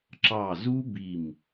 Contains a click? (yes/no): yes